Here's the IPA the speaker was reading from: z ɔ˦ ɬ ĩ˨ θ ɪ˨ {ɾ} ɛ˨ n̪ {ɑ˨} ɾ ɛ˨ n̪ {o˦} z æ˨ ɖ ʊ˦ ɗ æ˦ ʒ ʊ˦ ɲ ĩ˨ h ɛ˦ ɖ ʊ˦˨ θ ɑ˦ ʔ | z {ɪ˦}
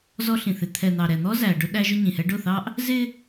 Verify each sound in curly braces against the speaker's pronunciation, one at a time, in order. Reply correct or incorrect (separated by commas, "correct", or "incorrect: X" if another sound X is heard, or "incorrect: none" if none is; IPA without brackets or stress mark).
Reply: incorrect: t̪ʰ, correct, incorrect: ɔ˦, correct